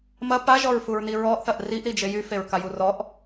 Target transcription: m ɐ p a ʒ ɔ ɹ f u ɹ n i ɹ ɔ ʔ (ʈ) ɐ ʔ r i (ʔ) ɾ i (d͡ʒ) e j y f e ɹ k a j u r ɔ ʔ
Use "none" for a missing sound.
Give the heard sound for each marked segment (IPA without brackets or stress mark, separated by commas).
θ, ʔ, d͡ʒ